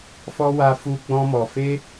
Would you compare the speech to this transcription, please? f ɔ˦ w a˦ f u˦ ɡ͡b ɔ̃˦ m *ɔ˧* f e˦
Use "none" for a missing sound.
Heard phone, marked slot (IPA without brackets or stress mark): ɔ˧